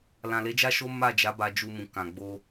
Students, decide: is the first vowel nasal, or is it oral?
nasal